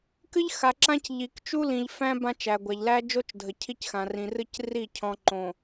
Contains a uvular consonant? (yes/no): no